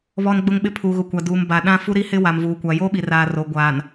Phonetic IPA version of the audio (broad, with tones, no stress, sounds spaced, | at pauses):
β ɔ˦ n ɡ͡b ʊ˦ ŋ ɓ ɪ˦ pʰ u˨ ɣ ʊ˨ kʷ a˨ d uː˨ m b a˨ ɗ ã˦ f u˦ ɾ i˦ h ɪ˦ w a˨ m v uː˨ kʷ a˨ j o˦ ɓ i˨ r aː˨ r o˨ ɡʷ aː˨ n